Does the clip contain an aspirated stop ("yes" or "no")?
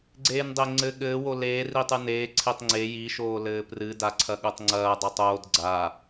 yes